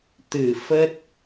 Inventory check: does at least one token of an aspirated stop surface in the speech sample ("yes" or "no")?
no